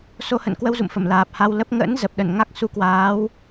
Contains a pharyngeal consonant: no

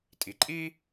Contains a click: yes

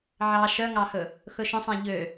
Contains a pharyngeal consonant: yes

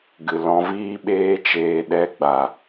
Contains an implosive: yes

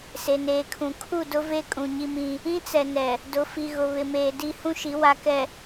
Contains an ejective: yes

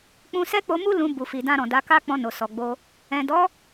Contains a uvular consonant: no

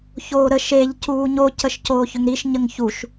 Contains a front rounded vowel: yes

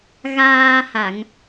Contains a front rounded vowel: no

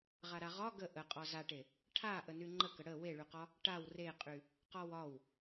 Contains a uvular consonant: yes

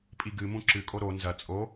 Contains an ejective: yes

